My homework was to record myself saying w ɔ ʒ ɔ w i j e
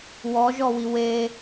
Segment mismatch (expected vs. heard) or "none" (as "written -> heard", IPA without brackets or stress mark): j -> w